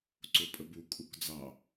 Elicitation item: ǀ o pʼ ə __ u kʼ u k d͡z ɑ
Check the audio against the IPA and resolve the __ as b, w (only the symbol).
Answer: b